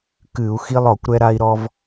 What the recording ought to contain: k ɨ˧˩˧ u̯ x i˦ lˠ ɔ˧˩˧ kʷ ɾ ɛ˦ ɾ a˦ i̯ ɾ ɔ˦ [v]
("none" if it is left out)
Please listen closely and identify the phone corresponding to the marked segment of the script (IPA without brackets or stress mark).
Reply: v